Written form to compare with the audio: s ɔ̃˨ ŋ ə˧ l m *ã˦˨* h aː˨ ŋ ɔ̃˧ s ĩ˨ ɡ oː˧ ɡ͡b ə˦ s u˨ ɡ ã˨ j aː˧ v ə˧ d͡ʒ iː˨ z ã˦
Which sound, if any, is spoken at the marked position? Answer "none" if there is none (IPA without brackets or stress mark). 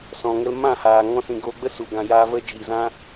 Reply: ã˦˨